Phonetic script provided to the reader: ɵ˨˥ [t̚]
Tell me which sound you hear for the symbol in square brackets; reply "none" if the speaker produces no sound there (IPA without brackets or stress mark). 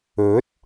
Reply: t̚